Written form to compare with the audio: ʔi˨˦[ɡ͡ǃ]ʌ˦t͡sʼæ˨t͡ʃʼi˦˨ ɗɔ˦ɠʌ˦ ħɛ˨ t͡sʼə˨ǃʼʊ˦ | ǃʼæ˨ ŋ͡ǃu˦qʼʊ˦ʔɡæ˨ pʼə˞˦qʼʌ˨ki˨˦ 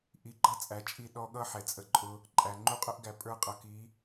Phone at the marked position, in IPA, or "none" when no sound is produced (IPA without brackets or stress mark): ɡ͡ǃ